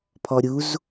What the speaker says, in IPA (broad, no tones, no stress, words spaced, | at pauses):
pʰɔ ɾʲuz